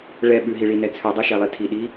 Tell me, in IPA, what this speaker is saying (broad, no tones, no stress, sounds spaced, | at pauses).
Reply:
ɭ ɛ ɓ ʉ ɦ i ɭ i n ɛ t͡sʰ ʉ dˤ i ʃ ɛ lˠ i tʰ i ɗ i